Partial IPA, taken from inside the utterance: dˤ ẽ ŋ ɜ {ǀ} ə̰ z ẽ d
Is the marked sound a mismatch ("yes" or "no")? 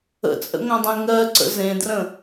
no